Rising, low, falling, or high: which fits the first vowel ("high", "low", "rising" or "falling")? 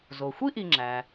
low